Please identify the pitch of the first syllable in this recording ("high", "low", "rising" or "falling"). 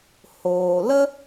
low